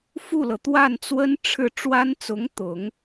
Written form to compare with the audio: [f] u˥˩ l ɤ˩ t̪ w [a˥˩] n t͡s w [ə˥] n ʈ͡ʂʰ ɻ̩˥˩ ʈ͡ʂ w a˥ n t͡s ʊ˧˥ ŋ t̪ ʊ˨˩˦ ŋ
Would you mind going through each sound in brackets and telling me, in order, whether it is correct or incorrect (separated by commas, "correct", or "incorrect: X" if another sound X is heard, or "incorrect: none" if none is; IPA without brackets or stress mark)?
correct, correct, correct